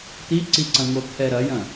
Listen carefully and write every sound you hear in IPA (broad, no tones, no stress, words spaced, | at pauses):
t̪iǀiǀɐ̃ ŋot̪ʰɛɾɐjɐ̃